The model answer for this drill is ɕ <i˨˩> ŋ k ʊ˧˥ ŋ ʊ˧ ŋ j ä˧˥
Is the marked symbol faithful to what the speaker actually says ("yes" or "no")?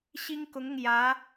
no